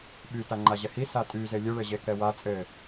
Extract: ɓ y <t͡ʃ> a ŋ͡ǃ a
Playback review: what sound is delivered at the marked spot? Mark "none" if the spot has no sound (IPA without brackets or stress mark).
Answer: t